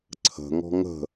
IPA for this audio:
ǀʰə̤ŋɔ̤ ŋə̤

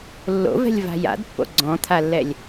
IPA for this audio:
lːo̰vɛ̤lʲ va̤ja̰dpːo̰ ɡ͡ǀɔ̃t̪ʰalːɛlʲ

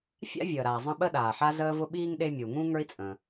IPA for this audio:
fʲa̰˥ vʲəː˩ɾaː˩ zˤə̃˦ɓə˥ ɗaː˩ħa˦zəː˦vʊ˦ ɓiː˥ŋɗe˦ mʲu˩ŋũ˥ ŋə˞˦i̯t͡sʼə̃ː˩

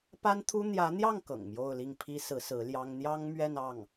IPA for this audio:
pa˥nt̪ʰu˥ n̪jä˧˥n̪jɑ˥˩ŋ kɤ̰˨˩ŋmjo˥˧ʊ̯ li˥˩ŋpʰi˥sɹ̩˧˥ sɹ̩˧˥ljɑ˥ŋ n̪jɑ˥ŋmɥɛ˥˧nɑ˥˩ŋ

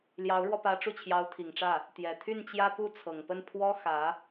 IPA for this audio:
ljɑ˧˥ʊ̯ɻwɔ˧pä˧˥ ʈ͡ʂu˥˩t͡ɕʰjɑ˧˥ʊ̯t̪ʰi˨˩ŋʈ͡ʂä˥˩ | t̪jɛ˨˩t̪ʰy˥˩n t͡ɕjä˥pu˥ t͡sʰɤ˨˩ŋpə˥˩npʰwɔ˥ xä˧˥

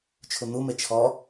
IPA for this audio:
t͡ʃʰun̪ume t͡ʃʰɔ

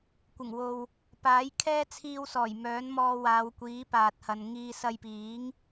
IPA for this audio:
kʷɪ˨˩ŋwo˨w | paː˨˥jkʰɛː˥ t͡sʰiː˧wsɔː˨˩j mœː˨˥nmɔː˧waː˨˧wkʷiː˨˥ paː˨t̚hɐ˨nŋiː˧ sɐ˧jpiː˨˥ŋ

